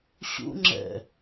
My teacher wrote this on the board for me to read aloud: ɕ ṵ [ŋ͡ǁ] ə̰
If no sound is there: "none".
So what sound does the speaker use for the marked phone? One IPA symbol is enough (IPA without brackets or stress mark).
ŋ͡ǁ